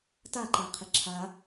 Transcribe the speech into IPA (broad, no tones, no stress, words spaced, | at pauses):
taǃaqʰɪ ǁʰa